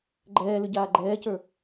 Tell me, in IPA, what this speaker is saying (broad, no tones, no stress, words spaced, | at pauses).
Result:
ɡ͡ǃɛːlʏɟaː ɡ͡ǃɛːcə˞